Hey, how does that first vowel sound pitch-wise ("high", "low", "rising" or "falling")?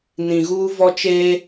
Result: low